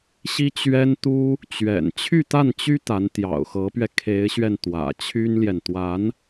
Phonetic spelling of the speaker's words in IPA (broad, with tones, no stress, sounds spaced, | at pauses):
ɕ i˥ t͡ɕ ɥ ɛ˥ n t̪ u˥ | t͡ɕ ɥ ɛ̰˨˩ n t͡ɕʰ y˥˧ t̪ a˥˩ n t͡ɕ y˥ t̪ a˧˥ n t̪ j ɑ̰˨˩ ʊ̯ x ɤ˧˥ p ɥ ɛ˧ kʰ e˧˥ ɪ̯ ɕ ɥ ɛ˧ n t̪ w ä̰˨˩ t͡ɕʰ y˥ n l j ɛ˨ n t̪ w a˧˥ n